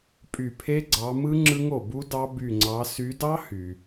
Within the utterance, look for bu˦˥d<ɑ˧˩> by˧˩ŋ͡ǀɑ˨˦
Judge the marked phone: incorrect: ɑ˦˥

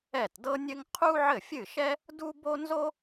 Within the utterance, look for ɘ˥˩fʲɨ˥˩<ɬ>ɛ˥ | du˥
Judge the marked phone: incorrect: ʃ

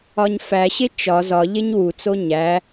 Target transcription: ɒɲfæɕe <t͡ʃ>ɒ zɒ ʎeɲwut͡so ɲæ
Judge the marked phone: correct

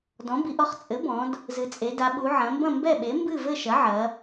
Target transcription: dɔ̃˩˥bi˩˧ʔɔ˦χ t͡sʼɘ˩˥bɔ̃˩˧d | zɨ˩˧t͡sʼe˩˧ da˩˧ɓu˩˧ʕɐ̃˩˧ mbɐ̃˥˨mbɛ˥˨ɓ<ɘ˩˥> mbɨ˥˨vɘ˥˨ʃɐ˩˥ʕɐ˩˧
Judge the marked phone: incorrect: e˩˥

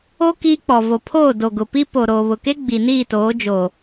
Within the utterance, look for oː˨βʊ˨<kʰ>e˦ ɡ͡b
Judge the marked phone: incorrect: k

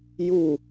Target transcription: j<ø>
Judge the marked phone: incorrect: u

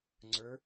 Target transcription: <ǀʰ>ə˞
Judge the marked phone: incorrect: ŋ͡ǀ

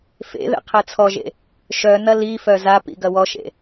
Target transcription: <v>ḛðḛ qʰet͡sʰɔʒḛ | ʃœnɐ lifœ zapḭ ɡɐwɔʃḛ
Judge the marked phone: incorrect: f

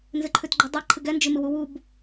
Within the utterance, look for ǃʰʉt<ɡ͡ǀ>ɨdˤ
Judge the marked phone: incorrect: ɡ͡ǃ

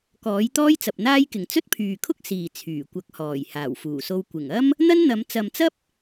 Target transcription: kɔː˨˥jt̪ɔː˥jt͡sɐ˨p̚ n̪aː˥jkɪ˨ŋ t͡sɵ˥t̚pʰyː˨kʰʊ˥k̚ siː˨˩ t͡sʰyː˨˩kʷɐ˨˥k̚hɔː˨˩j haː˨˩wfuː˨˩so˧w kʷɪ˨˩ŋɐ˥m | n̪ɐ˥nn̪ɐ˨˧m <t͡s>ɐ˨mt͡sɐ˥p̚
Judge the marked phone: correct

